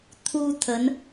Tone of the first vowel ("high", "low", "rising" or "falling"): high